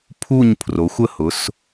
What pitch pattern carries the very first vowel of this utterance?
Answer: falling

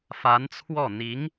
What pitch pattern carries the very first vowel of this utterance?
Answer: rising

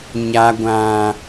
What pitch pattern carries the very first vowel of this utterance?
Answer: high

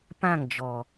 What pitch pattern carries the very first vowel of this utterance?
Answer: falling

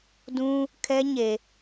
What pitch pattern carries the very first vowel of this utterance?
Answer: high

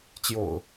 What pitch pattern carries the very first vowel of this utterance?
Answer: low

